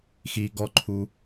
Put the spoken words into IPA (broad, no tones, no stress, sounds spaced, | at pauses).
x i ɡ ɔ ǃʰ u